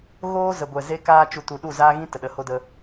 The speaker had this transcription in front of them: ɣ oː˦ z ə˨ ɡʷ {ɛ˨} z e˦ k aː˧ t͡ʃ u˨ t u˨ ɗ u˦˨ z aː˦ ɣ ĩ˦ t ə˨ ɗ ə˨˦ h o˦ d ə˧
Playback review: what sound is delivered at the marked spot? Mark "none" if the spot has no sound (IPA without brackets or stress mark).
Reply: ɛ˨